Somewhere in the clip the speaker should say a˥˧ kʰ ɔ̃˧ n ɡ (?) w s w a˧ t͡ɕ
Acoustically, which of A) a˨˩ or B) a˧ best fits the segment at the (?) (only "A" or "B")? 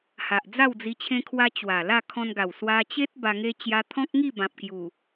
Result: A